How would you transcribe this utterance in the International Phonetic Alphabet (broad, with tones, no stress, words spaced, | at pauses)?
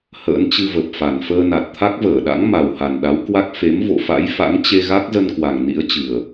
hə̰ː˧˥nt͡ɕɨ˧və˨˩p̚fa˨˩n fəː˧na˨˩t̚ t̪ʰa˦˥k̚vəː˧˩ɗa̰˧˥ŋ ma˨˩wha˨˩nɗa˨˦wkwa˦˥k̚ fe˨˦m vo̰˧˨ fa̰˧˥jfa̰˧˥ŋt͡ɕe˧ɣa˦˥k̚ zə˧nkwa˨˩ŋ nḭ˧˥ə̯t͡ɕɨ˨˩ə̯